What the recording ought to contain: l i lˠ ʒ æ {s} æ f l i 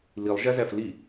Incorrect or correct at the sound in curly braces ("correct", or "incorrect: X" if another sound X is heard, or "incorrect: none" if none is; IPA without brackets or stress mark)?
incorrect: z